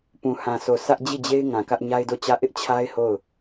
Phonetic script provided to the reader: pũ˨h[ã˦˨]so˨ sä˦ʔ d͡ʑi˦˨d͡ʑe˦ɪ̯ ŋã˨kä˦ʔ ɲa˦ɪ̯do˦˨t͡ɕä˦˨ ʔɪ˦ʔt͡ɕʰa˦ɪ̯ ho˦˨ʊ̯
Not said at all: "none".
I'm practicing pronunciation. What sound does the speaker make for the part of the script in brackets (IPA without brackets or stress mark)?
ã˨